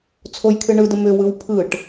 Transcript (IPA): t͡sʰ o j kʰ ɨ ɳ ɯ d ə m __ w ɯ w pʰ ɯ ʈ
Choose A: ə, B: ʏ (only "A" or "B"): B